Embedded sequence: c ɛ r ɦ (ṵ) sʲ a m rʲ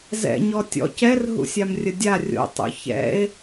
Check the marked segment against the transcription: correct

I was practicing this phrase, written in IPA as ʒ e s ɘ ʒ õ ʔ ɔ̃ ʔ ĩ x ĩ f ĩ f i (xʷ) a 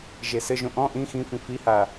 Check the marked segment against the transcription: incorrect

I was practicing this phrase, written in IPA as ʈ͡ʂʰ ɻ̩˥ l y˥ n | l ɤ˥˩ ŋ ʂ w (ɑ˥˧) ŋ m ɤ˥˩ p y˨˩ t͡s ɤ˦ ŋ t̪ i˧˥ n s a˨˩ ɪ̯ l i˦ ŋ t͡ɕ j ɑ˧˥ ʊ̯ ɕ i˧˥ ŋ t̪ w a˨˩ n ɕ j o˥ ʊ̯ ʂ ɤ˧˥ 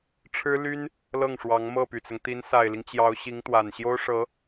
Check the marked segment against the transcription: incorrect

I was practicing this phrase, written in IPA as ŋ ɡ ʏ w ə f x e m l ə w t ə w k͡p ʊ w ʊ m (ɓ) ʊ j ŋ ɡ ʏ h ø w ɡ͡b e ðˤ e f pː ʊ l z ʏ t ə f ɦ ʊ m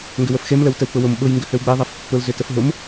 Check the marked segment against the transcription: correct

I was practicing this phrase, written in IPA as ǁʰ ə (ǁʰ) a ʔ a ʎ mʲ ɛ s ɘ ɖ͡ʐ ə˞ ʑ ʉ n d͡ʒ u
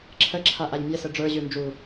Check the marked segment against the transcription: correct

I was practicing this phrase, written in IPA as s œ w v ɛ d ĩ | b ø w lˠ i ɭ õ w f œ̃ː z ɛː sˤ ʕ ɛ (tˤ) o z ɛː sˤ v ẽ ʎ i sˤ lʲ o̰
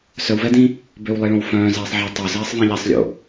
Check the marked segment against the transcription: correct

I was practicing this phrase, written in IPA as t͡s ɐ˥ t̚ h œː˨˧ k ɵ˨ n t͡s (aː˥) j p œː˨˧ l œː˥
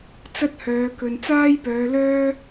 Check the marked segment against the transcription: correct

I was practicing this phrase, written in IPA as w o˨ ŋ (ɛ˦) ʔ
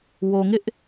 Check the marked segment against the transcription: incorrect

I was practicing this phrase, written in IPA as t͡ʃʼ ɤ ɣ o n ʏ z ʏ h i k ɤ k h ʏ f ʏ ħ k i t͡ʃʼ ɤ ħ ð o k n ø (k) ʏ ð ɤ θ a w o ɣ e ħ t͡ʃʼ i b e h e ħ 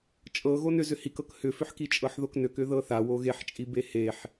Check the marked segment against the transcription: correct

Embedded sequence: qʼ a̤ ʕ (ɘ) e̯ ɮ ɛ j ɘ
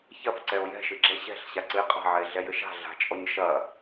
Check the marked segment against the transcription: incorrect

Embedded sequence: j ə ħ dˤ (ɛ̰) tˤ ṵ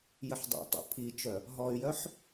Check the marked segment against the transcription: correct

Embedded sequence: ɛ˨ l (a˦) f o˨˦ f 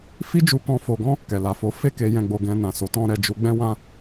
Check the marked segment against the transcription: incorrect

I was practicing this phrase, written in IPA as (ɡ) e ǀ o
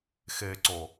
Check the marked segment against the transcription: incorrect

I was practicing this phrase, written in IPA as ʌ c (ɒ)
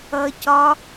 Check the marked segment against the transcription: correct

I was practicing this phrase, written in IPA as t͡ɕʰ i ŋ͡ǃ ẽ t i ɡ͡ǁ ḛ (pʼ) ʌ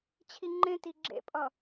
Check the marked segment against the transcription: correct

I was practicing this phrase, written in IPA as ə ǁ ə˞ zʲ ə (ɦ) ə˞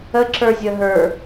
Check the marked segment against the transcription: correct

